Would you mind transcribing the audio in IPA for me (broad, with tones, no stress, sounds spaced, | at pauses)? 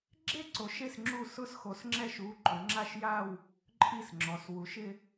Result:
ɡ͡ǁ e˥˧ ǀ o˨˦ ʃ e˥˩ s ŋ͡ǁ u˥˩ s ʊ˥˧ s x o˨˦ s ŋ͡ǁ ɛ˥˩ ʃ u˨˦ ǃ ʊ˨˦ ŋ͡ǁ a˥˧ ʃ j a˥˧ w | ǃʼ i˥˩ s ŋ͡ǁ ɔ˨˦ s w u˨˦ ʃ ɪ˥˧